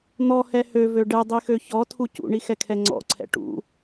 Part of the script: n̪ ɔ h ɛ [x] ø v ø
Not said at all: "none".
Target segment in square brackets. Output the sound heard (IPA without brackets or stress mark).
h